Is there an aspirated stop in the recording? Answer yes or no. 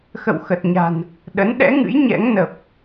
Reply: no